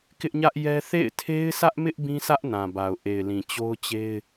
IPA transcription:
kɪ˦ʔɲä˦ʔjɛ˦ θḛ˦˨ɪ̯tʰe˦ɪ̯sä˦ʔmɪ˦ʔ bĩ˦sä˦ʔ nã˨ba˨ʊ̯ʔe˨ɪ̯lĩ˨ t͡ɕo˦ʊ̯t͡ɕe˦ɪ̯

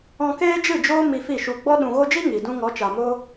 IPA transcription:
ɔ̃˧keː˦d͡ʒɨ˦˨d͡ʒoː˦ mi˧fi˦˨ʃu˧ ɡ͡bɔ˧ɗũ˨ɣo˧d͡ʒi˦ ŋi˨ dũ˧ŋɔ˨˦t͡ʃa˨moː˦

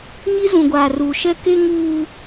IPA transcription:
ɲi˦zũ˨ ɡʷaː˨ruː˨ʃɛ˦ke˦ ŋuː˦

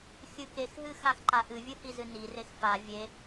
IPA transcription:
xʲɨkexɦɨ xaxǃaʔɨvʲɨ hizɨnirex fa vʲe

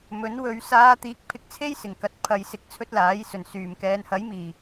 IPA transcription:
mɵ˨˥nwɵ˨˧ɥ saː˨˧t̪iː˨˥k̚ pʰɪ˧k̚t͡sʰe˥jsɪ˨˩ŋkɐ˨t̚ pʰɐ˨˧jsɪ˨˥k̚t͡sʰɵ˥t̚ laː˨˥jsɵ˨˩nsyː˨˩m kɛː˨nhɐ˨˥jmiː˨˩

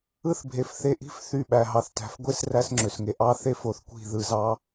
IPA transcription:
ɯ˦θbʱe˨fθe˧ʔi̤˦f θy˦˨ɓæ˨ɦɑ˨θ tæ̤˨fɡʷe˦s ræ˦sŋ͡ǁø˨sŋe˧ ʔɑ˦ θe˦f o˨θkʷi̤˦˨ðɯ˨zɑ˧

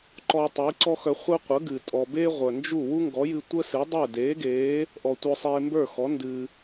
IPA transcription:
ǃɔ˧ tˤi˩˥ǀɔ˥xœ˧ χʷœ˥ qʷə˩˥ɡɨ˩tʼɔ˩ be˥ʁʷœ˩nd͡ʒu˥˩ wu˥ŋɡɔ˩˥jɨ˧ tʷə˥sɨ˩˥dˤə˞˥˩ deː˩˥ɡeː˩˥ | ʔɔ˩ tʷœ˧sˤeː˧mbə˞˥˩xɔ˩˥ ndɨː˩

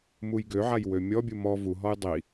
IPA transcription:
mujɡøʕaj wømʲɔbʲu mɔ vuɦɔj dˤi

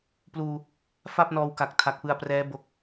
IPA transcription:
pluː˧ | fa˥˩p̚nɔː˧wka˨˩k̚ tʰa˨˩k̚pɯ˧a̯prɛː˦˥ bo˦˥k̚

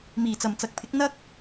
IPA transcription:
miː˨˩t͡sɐ˨˩mt͡sɐ˨k̚pʰɪ˨˥k̚ n̪ɐ˥k̚

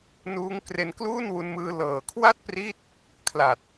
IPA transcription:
nuː˦˥ŋ kre˧nkluː˥˩n wu˧nmɯː˧ lɤː˨˩kʰwa˥˩t̚pri˦˥t̚ | kʰla˨˩t̚

